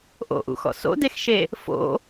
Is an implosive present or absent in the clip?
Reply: absent